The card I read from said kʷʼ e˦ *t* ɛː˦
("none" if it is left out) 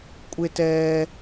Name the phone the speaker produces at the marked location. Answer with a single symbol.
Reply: t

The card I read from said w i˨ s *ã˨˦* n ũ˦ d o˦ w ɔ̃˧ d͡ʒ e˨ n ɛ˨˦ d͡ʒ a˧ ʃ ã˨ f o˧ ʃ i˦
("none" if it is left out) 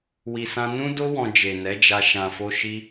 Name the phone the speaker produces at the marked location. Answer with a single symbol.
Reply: ã˧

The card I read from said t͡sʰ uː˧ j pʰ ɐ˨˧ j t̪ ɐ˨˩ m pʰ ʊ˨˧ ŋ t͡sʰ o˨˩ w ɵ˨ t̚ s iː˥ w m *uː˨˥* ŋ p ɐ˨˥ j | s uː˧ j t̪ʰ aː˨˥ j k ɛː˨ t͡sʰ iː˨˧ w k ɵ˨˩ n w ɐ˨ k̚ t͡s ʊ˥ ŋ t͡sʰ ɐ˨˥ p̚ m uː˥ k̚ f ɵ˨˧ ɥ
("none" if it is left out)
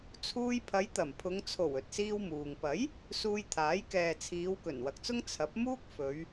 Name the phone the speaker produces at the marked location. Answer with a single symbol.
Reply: uː˨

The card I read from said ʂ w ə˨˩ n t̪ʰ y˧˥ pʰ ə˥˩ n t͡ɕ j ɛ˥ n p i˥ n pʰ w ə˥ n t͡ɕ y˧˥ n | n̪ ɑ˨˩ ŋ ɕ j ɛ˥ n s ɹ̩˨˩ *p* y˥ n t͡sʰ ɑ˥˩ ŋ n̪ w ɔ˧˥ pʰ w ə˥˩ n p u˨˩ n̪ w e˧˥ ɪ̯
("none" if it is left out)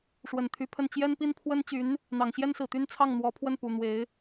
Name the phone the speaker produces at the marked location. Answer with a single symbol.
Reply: t̪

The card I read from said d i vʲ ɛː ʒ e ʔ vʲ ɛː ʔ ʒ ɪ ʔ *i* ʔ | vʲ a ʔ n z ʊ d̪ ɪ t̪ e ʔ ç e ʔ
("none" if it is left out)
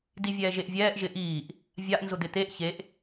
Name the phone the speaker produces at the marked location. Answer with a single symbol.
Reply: iː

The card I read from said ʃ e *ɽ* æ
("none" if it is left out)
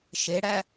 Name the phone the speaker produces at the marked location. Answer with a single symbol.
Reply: ɽ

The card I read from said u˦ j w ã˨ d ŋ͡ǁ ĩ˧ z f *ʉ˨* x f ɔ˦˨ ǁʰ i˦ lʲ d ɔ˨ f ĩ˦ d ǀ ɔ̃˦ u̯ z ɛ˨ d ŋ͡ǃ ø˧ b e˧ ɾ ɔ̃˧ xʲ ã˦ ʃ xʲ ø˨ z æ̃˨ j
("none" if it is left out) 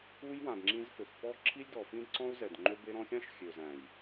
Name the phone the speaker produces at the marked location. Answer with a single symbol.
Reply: ø˨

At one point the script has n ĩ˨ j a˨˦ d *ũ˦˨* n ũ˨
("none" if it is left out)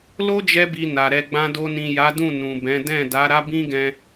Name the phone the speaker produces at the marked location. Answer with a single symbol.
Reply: ũ˦˨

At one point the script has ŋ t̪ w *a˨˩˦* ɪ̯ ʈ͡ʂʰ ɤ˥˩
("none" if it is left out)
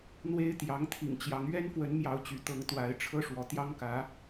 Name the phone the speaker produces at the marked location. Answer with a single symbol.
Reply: a˧˥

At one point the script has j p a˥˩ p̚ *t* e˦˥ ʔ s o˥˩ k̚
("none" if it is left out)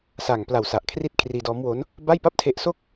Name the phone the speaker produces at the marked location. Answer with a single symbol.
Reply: tʰ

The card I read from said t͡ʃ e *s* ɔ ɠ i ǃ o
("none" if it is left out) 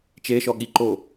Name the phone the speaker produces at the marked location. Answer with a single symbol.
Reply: ʃ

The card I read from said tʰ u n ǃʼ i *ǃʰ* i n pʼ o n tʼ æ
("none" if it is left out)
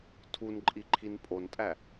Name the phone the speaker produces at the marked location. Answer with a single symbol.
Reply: ǃʰ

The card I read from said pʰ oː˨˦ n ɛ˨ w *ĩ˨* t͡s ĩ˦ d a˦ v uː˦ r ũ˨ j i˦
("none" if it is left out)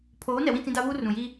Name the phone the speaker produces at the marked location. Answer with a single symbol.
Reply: ĩ˦˨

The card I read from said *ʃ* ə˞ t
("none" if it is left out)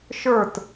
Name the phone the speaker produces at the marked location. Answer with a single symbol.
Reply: ʃ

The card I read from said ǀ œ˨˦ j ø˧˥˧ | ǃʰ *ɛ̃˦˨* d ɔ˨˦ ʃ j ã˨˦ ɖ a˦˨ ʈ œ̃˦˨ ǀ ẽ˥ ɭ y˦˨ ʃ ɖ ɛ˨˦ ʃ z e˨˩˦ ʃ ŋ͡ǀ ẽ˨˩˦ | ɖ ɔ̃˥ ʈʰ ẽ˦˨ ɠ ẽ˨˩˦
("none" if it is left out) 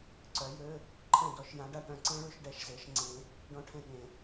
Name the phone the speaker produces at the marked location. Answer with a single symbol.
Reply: ɛ̃˦˨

